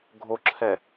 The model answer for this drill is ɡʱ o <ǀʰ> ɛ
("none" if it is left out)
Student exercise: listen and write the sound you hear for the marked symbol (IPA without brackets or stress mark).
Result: ǁʰ